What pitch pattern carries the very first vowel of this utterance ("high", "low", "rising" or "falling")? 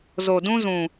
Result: low